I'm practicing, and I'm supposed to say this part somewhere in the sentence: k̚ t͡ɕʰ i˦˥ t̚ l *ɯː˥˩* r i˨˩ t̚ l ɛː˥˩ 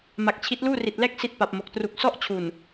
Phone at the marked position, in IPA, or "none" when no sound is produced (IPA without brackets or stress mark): uː˥˩